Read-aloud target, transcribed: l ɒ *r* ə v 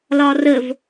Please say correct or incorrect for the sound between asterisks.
correct